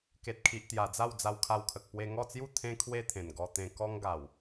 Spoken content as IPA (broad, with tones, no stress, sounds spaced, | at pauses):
k e˨ t̚ kʰ i˨ ʔ t̪ j a˨˩ d͡z a˥˧ w d͡z a˧ w kʰ a˧ w kʰ ə˨ k̚ p w e˧ ŋ ɔ˥˧ t͡s j u˥˧ t̪ʰ ẽ˦ kʰ w e˦ t̪ʰ ẽ˨˩ n ɡ ɔ˧ t̪ ẽ˧ k ɔ˦ ŋ ɡ a˨˩ w